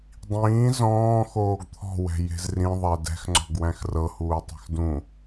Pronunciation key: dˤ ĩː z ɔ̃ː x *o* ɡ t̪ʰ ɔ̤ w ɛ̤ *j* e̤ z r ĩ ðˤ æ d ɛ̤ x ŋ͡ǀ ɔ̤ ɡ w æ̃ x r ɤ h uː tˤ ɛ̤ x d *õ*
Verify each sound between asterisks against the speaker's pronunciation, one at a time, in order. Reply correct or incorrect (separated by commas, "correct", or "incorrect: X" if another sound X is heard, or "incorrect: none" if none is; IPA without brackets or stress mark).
incorrect: oː, correct, incorrect: ũ